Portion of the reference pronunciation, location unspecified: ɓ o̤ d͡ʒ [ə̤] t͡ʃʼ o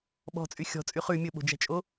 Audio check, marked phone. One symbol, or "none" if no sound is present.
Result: æ̤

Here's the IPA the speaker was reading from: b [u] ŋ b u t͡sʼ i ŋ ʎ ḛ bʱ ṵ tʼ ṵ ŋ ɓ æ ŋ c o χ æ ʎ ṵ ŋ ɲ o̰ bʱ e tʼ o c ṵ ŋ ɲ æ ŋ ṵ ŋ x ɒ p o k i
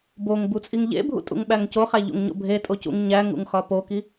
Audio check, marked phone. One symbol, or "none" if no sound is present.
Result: o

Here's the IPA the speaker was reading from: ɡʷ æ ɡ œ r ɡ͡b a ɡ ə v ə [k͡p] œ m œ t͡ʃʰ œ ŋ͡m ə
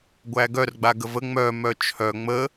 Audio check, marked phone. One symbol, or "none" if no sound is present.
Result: ŋ͡m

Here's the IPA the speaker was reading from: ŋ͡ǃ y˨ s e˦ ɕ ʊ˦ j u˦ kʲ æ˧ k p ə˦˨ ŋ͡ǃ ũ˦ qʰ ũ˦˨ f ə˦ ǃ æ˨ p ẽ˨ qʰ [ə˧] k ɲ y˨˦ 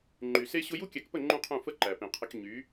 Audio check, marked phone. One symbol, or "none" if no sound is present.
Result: ə˧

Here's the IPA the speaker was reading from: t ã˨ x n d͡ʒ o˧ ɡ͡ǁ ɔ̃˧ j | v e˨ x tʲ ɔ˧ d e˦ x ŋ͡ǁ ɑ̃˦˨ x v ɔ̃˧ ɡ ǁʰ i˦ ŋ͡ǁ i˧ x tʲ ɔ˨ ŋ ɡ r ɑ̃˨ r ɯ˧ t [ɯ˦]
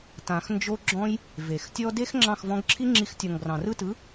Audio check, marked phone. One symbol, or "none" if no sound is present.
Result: ɯ˨˦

